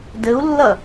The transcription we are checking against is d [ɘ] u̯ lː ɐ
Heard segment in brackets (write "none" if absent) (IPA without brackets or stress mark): ɘ